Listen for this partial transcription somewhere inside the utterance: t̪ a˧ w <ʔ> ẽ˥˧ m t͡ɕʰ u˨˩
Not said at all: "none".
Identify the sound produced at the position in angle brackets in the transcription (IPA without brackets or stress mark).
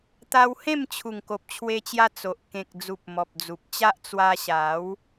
h